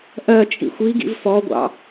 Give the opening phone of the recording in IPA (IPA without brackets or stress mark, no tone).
ʔ